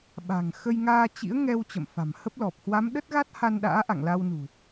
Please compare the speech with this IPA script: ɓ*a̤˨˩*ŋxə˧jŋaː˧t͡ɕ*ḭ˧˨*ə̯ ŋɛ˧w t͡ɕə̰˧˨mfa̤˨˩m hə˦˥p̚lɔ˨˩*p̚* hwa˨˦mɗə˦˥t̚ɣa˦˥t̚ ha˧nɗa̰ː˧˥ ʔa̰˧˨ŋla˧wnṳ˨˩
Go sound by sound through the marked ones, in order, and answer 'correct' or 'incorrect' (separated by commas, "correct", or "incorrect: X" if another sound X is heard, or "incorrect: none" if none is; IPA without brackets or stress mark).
correct, incorrect: ḭ˧˥, correct